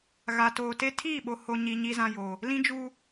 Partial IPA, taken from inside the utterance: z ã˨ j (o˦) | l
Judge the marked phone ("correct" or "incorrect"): incorrect